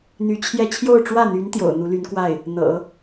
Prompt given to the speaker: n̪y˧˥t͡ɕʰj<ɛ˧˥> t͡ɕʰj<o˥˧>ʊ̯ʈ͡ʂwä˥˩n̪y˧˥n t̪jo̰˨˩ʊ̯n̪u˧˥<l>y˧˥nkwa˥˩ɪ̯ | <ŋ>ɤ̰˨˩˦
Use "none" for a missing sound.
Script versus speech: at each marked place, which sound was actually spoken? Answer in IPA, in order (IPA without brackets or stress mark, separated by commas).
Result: ɛ˥˧, o˥˧, l, n̪